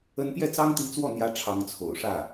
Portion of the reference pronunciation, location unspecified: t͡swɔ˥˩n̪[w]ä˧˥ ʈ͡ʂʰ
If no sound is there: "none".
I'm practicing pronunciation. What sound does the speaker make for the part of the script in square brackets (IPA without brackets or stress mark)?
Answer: j